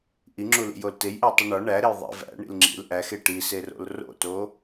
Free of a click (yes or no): no